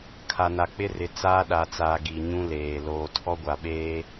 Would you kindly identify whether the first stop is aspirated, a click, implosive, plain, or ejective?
aspirated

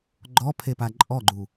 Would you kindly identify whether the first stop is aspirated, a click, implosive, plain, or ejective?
click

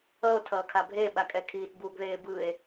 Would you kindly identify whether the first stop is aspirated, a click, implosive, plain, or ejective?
aspirated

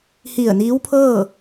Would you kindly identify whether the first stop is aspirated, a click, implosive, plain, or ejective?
aspirated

